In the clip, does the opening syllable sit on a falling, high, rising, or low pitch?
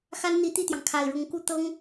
high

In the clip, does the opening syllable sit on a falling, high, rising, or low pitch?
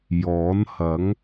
rising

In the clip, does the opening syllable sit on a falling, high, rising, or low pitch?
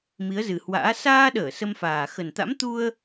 rising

